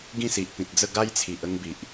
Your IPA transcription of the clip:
ɡ ĩ˥˧ s i˨ ʔ p ĩ˨ t̚ d͡z ə˥˧ ɡ a˦ j t͡sʰ i˨ ʔ ə˧ ŋ b i˨ ʔ

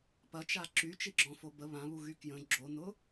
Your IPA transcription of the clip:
p ɐ t͡ʃ a ǁ y t͡ʃ i ɡ͡ǁ ɔ̃ f o b ə β ã β u ɣ y k j ə̃ ɡ͡ǁ o n ʊ

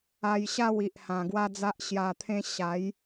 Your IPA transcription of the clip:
a˧ j ɕ a˥˧ w i˨ ʔ h ã˨˩ ɡ w a˦ d͡z a˦ ʔ ɕ j a˨˩ t̪ʰ ẽ˧ ɕ a˨˦ j

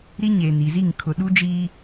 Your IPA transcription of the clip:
ɾ i˦ ɲ eː˨ n i˨ z i˦˨ ŋ kʰ ʊ˨ ɗ u˦ d͡ʒ iː˦

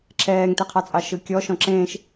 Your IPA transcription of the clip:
ǁʰ ɛː ŋ t e qʰ ɑ t͡sʼ ɑ ʃ ɯ kʲ ɔ ʃ ɔ̃ ǁ ẽː ʃ

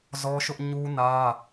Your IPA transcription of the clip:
z ɔ˦ ʃ ʊ˦ ʔ ɲ u˦ n ä˦

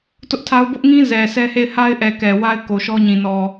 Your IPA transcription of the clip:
t ʊ˦ ʔ tʰ a˦ ʊ̯ b ʊ˦ ʔ ŋ ĩ˦ z ɛ˨ sʰ ɛ˦ h e˦˨ ɪ̯ h a˦ ɪ̯ ʔ ɛ˨ k ɛ˨ w a˦ ɪ̯ k o˨ ʃ ɔ˦ ɲ ĩ˨ n ɔ˨

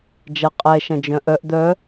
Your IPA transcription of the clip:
d͡ʒ ɐ qʼ ɛ ʃ ɐ̃ d͡ʒ œ̃ ʔ œ ʔ d̪ œ

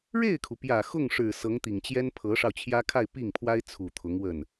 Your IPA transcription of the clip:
ɻ e˥˩ ɪ̯ kʰ u˩ p j ä˨˩ x ʊ˥˩ ŋ ʂ ɻ̩˨˩ s ɤ˧˥ ŋ t̪ i˨˩ ŋ t͡ɕ j ɛ˥ n pʰ ɤ˧˥ ʂ ɑ˧ ʊ̯ t͡ɕʰ j ä˥ kʰ a˥˧ ɪ̯ p i˥˩ ŋ pʰ w a˥ ɪ̯ t͡sʰ u˨˩ t̪ʰ ʊ˧˥ ŋ w ə˥˩ n

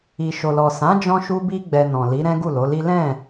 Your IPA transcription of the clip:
i˨ ʃ o˨ l ɔ˨ s ã˨˦ d͡ʒ ɔ̃˧ ʃ u˧ b i˧ ɡ͡b ɛ˧ n ɔ̃˨ l i˨˦ ɾ ɛ̃˦ ɡ u˦˨ l o˨˦ l i˦ l ɛ̃˦˨

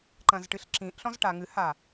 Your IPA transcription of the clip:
ǃ ɐ̃ z ʈ ɨ ɬ ǁ ĩ ʔ ɬ ɔ̃ z ʈ a ŋ ɨ h a

